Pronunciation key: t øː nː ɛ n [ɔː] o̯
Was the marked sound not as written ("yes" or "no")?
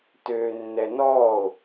no